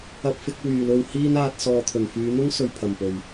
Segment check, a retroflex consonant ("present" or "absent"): absent